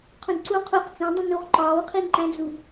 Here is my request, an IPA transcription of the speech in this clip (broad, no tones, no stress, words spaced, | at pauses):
qʰũdǀu qʰuχ t͡sẽdˤũnuʁ ǃɒːwqʰinǃæ̃d͡zuv